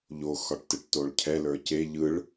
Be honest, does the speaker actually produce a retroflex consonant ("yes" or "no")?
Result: yes